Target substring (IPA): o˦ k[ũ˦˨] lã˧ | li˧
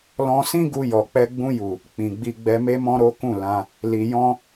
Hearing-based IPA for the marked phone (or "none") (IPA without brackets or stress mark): ũ˦˨